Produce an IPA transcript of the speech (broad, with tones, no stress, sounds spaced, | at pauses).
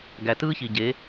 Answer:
ɡ æ˨ t ɯː˦ ç i˨ ɟ e˨˦